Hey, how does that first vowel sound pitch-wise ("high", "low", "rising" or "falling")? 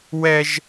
high